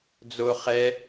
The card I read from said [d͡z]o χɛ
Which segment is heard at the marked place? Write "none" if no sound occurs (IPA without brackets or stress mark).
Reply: d͡z